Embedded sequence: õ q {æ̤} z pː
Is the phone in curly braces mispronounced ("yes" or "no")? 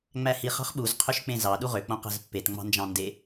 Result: no